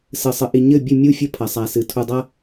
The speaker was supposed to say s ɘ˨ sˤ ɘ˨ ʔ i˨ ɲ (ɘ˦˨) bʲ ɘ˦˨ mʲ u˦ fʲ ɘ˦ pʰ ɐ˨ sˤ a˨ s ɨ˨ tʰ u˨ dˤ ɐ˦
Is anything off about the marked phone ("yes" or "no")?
no